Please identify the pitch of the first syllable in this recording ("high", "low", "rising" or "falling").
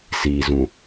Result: low